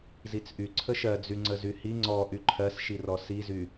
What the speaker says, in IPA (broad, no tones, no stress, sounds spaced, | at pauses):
z i t͡s ʔ y ǀʰ ə ʃ ɜ d͡z y ŋ͡ǀ ə z y h i ŋ͡ǀ ɔ ʔ y ǃʰ ɜ s ʃ i r ɔ s i z y